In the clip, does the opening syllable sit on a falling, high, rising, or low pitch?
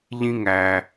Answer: high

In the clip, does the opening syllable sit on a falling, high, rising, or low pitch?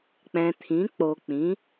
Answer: low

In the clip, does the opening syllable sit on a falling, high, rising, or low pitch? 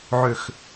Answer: low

